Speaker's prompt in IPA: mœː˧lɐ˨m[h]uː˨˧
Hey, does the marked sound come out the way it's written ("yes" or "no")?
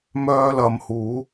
yes